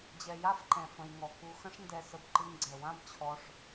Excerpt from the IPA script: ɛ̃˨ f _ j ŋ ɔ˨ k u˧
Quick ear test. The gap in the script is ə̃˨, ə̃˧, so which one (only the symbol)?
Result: ə̃˨